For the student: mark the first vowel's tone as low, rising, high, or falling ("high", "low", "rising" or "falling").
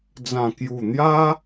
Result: low